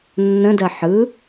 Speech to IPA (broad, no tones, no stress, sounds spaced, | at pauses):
nː ə̃ d ɜ ħ ɯ